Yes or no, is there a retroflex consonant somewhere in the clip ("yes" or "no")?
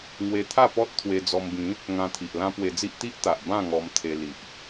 no